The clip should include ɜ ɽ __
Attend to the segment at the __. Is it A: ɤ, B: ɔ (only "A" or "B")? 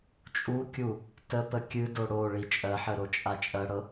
A